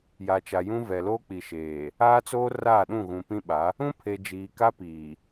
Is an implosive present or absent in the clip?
present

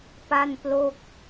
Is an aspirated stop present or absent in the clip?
absent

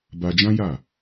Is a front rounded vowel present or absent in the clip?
absent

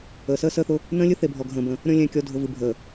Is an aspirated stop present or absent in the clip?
absent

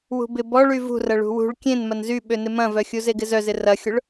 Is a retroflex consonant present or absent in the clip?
present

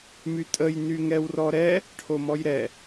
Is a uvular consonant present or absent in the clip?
absent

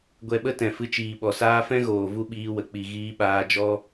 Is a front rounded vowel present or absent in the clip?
absent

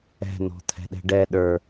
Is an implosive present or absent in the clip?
present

